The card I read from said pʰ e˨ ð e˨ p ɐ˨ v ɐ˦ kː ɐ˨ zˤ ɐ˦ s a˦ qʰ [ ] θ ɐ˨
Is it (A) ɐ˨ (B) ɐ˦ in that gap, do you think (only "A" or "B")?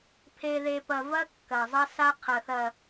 A